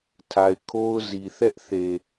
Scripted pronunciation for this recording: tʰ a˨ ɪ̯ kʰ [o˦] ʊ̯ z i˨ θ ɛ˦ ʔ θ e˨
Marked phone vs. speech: correct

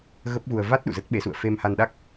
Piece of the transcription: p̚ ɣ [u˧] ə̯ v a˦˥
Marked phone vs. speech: correct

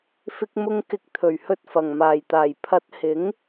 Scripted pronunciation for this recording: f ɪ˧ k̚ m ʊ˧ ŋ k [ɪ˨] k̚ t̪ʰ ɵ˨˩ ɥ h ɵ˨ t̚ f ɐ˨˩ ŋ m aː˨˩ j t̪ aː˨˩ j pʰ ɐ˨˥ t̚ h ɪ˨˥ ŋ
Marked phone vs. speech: correct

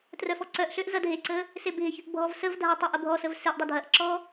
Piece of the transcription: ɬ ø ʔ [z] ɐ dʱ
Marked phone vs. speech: correct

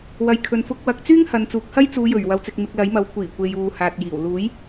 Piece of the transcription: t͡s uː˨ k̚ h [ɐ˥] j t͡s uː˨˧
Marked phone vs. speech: correct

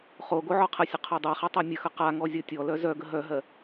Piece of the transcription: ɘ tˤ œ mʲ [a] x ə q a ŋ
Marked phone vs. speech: incorrect: ə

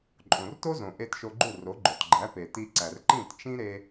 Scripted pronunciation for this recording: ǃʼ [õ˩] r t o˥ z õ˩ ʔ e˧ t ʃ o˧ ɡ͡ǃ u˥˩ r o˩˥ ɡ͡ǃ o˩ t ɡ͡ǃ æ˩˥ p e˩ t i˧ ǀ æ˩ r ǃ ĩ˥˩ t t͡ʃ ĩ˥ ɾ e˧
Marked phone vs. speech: correct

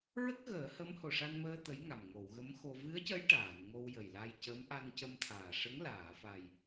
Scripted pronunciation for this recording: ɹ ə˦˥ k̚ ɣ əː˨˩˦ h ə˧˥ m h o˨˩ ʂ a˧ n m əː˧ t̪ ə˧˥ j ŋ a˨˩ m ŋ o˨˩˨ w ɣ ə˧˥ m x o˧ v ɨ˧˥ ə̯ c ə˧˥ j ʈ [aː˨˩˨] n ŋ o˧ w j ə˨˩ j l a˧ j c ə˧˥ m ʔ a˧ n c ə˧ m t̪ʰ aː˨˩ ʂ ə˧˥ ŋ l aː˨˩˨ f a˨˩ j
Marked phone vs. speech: correct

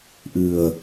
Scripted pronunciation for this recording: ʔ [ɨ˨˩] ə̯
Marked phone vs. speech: correct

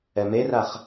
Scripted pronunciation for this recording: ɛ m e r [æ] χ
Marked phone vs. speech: incorrect: a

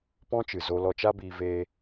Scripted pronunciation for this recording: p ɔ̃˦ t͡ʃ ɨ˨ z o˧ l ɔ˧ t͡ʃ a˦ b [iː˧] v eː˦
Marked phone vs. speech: correct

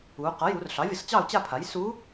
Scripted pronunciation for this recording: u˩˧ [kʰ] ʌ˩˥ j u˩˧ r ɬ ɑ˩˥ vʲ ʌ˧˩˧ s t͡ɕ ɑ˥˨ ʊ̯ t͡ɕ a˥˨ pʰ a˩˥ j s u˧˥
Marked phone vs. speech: incorrect: q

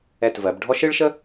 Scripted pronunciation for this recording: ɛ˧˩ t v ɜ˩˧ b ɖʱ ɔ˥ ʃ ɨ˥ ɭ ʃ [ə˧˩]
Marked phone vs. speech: incorrect: ə˥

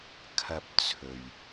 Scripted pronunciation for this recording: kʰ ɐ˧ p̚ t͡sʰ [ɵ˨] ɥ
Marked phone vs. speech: correct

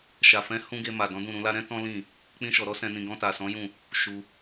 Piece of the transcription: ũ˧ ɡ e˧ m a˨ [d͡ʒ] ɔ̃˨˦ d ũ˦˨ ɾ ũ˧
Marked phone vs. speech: incorrect: d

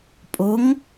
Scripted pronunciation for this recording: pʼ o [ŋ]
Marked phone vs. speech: correct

